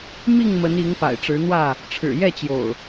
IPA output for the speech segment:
m i˥˨ ŋ m ə˨˦ n i˨˦ ŋ p a̰˨˩ ɪ̯ ʈ͡ʂ ɻ̩˨˦ n̪ w ä˥˨ | ʈ͡ʂʰ ɻ̩˨˩ j ɛ˥˨ t͡ɕ j o̰˨˩ ʊ̯

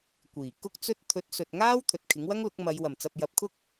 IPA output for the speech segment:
kʷ iː˨˩ k ʊ˥ k̚ t͡s ɵ˥ t̚ t̪ʰ ɵ˨˥ t̚ s ɵ˨ t̚ ŋ aː˥ w t̪ʰ ɵ˨ t̚ kʰ ɪ˨˥ ŋ w ɐ˥ ŋ l ʊ˨˥ k̚ m ɐ˨˧ j w ɐ˨˩ m t͡s ɐ˨ p̚ j ɐ˨˥ p̚ kʰ ʊ˥ k̚

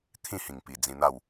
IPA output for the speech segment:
t̪ʰ ĩ˥˧ h ĩ˨˩ ŋ p i˨˩ d͡z ĩ˧ n̪ a˥˧ w

